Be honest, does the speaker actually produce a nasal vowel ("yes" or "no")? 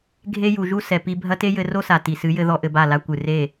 no